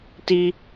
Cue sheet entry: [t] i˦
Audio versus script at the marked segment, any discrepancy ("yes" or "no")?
no